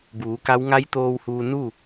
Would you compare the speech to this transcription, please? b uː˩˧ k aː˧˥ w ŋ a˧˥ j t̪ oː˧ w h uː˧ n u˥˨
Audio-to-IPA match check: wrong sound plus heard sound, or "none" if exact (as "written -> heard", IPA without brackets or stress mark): aː˧˥ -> a˧˥